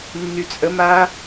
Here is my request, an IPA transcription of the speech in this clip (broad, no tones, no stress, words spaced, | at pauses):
nːyt͡sʼə ma